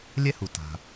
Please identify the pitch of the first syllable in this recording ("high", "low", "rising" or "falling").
high